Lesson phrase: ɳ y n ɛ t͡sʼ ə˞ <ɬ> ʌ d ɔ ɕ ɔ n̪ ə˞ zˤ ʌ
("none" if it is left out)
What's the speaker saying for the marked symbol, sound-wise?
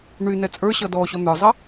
ɕ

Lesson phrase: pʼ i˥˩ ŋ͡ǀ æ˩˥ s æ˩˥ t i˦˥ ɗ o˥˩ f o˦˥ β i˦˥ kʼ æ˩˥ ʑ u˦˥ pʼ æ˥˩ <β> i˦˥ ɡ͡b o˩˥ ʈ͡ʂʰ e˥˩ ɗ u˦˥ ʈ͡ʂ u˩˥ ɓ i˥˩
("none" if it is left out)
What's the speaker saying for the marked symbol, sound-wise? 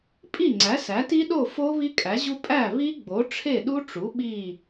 β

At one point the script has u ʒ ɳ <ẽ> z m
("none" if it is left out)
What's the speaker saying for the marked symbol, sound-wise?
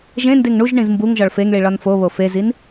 ĩ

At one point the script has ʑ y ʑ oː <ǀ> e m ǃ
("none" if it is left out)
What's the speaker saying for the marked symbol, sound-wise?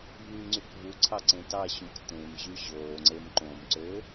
ŋ͡ǀ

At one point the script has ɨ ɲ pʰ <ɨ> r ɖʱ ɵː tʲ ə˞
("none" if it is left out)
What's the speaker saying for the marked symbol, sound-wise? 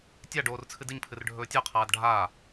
ɨ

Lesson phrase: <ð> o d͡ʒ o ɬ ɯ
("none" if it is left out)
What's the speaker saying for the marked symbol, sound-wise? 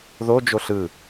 ð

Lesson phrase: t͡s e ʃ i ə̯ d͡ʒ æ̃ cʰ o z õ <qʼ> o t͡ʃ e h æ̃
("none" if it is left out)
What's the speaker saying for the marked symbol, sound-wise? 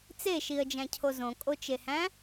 kʼ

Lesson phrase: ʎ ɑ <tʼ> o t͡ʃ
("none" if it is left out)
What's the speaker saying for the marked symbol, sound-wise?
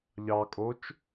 kʼ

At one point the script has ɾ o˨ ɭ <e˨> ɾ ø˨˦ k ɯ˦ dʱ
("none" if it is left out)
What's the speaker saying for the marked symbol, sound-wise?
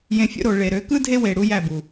e˨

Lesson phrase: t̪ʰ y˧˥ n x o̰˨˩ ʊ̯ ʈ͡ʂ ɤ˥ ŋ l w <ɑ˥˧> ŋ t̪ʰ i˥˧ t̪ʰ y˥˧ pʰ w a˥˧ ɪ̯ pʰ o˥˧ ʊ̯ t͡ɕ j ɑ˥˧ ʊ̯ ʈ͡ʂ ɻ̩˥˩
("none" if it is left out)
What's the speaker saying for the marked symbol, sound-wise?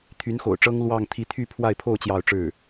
ɑ˥˧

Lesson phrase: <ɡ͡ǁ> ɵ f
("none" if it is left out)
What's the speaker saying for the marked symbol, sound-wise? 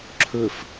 ǁʰ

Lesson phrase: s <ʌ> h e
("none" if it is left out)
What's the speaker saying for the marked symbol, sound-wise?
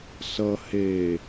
ʌ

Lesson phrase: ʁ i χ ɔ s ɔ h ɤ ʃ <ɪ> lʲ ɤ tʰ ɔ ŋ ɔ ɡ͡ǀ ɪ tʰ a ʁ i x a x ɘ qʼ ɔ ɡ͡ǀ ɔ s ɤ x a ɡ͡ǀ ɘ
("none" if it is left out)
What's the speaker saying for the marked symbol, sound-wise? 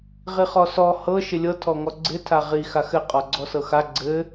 ɪ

